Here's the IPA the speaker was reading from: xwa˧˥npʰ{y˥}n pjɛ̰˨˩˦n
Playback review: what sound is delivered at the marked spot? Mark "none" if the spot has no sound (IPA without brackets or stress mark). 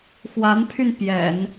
y˧